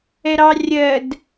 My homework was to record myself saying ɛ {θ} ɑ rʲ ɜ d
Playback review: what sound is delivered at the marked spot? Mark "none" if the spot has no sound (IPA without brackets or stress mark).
ɾ